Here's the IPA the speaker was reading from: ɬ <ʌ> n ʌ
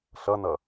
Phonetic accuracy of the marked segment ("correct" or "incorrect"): correct